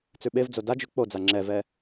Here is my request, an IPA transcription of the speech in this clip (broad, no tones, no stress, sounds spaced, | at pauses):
t͡s ʉ ɓ e v d͡z o d a d͡ʒ ʉ k͡p o d͡z a ŋ͡ǁ ɛ v ɛ